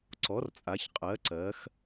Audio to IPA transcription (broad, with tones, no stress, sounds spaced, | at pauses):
ǀ ɔ˩˥ r t͡sʼ a˩˧ ç qʼ ɜ˩˧ ǀ ɜ˩˧ x